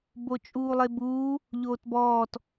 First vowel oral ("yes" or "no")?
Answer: yes